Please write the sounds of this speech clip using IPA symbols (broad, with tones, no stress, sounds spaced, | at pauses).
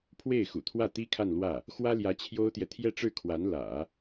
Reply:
pʰ w e˥˩ ɪ̯ x ṵ˨˩ t̪ʰ w ä˥˩ t̪ i˥ kʰ a˥˧ n l w ä˥˩ | x w ä˥ l j ä˧˥ t͡ɕʰ j o˥ ʊ̯ t̪ j ɛ˨ t̪ʰ j ɛ˥˧ ʈ͡ʂ ɻ̩˥˩ kʰ w a˧˥ n l ä̰˨˩˦